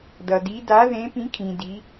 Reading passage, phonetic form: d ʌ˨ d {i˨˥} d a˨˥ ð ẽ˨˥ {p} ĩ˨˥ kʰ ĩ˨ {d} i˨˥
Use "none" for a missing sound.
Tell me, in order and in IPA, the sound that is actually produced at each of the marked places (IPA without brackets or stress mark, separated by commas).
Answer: i˨˥, p, d